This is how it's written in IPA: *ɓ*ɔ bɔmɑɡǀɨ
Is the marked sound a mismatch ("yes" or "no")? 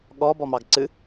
yes